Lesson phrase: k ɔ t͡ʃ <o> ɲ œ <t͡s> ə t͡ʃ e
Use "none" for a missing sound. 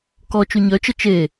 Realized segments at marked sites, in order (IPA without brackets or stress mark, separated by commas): u, t͡ʃ